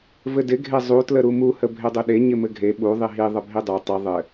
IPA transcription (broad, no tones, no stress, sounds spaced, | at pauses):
v ɘ d ɪ ɡʱ e zˤ u t l ə ɾ u m u h ə bʱ e dˤ ɘ ɗ e ɲ ɪ m ɘ ɡʱ e ɓ u ðˤ i ɦ i ðˤ ə bʱ i dˤ ɛ tˤ ɨ ðˤ ɘ